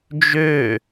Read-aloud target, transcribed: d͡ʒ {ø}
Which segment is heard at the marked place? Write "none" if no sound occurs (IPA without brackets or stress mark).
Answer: ø